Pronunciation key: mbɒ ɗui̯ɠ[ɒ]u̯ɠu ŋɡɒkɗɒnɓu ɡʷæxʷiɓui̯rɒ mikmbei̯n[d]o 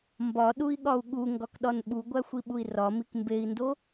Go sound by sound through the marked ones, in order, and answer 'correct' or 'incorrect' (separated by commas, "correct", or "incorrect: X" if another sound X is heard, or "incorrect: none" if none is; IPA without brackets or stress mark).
correct, correct